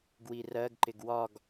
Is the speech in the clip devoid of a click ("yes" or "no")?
no